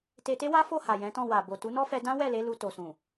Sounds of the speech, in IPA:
t e˧ t e˦ w a˦ f o˦˨ h a˨ j ɛ̃˨˦ t ɔ̃˦˨ w a˨ b o˨ t u˨˦ n ɔ˦ f ɛ˧ d ã˦ w ɛ˦˨ l e˨˦ l u˧ t o˨ s ũ˨

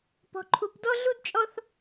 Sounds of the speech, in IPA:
p ɔ̤˧ ǃʰ u˧ p d ɔ˥ ɮ u˥ d t͡ʃʼ ɔ˥ θ

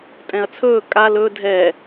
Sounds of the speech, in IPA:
tʼ ɛ̃ ɐ̯ t͡sʰ ɵː kʼ a l ɵ dʱ ɛ

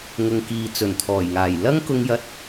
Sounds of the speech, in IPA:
ŋ ʊ˨ ŋ k iː˨ t͡s ɵ˨˩ n t̪ʰ ɔː˨˩ j ŋ aː˨˩ j l ɐ˥ ŋ k ʊ˧ ŋ j ɐ˧ t̚

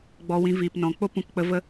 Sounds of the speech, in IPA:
ɡ͡b ɔ˧ w ĩ˧ v iː˨ p n ɔ̃˨ k͡p o˦ p ũ˧ k k͡p ə˧ v ə˦

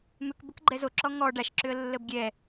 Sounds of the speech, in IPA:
m ʏ k b ə k ɡ͡ǃ ɛ z o ǁ ɔ ŋ ɔ ɖ a ʃ ǁ ʏ ə̯ lː ə b ɡʲ ɛ

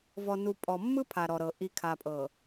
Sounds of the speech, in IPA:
v ɔ˨ n u˨ pʼ ɔ˨ mː ɯ˦ pʰ a˨ ɾ ɔ˨ ɾ ɤ˨ ʔ i˨ kʰ a˨ pʼ ɤ˨

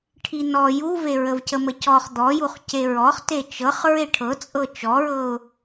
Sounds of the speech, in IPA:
ʈʰ i n ɔ j u v e ɹ ə v c ə m ə c ɔ χ d̪ ɔ j u χ c e ɹ ɔ χ t e t͡ʃ ɤ χ ɹ e ʈʰ ɤ t͡sʼ ɤ t͡ʃ ɔ ɹ ɤ ʊ̯

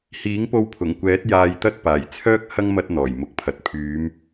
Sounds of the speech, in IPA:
h iː˨˥ ŋ p o˧ w pʰ ʊ˨˩ ŋ kʷ ɛː˨˥ t̚ j aː˧ j t̪ ɐ˥ t̚ p aː˨˩ j t͡sʰ œː˥ k̚ h ɐ˥ ŋ m ɐ˧ t̚ n̪ ɔː˨˩ j m ʊ˨ k̚ pʰ ɐ˨ t̚ pʰ yː˨˧ m

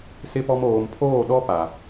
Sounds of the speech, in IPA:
s ɪ˦ p ɔ˦ m oː˨ m pʰ oː˦˨ ɗ ɔ˦ p a˨

